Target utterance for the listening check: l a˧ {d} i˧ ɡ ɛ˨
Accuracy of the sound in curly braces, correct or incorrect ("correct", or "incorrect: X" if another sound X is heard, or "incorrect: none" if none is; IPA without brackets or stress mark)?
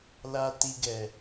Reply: incorrect: t